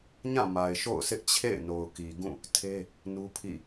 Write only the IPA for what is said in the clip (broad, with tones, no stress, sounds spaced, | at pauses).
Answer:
ɲ ã˦˨ m a˨ ɪ̯ ʃ o̰˦˨ ʊ̯ s ɪ˦ ʔ t͡ɕʰ ḛ˦˨ ɪ̯ n o˨ ʊ̯ k i˨ ɡ ũ˦˨ | tʰ e˦ | n u˦ pʰ ḭ˦˨